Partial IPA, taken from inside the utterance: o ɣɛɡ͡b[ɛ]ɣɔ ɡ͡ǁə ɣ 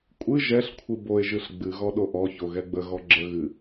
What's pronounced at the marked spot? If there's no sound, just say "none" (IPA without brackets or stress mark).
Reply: ə